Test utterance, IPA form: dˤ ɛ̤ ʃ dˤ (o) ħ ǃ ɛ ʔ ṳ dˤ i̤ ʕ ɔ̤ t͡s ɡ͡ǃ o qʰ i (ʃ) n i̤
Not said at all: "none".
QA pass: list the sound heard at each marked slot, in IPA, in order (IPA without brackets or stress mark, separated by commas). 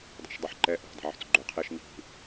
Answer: u, ʃ